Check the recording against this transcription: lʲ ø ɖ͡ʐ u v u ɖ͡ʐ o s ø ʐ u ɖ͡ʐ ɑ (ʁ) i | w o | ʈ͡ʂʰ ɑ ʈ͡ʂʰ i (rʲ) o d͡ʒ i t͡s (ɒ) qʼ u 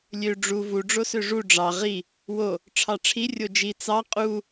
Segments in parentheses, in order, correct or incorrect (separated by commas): correct, correct, incorrect